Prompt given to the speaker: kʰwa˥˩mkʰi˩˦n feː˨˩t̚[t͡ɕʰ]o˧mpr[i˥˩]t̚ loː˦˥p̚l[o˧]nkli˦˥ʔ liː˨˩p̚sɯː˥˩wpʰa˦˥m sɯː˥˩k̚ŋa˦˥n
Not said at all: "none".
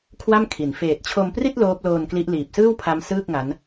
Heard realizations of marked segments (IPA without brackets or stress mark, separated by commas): t͡ɕʰ, i˥˩, oː˧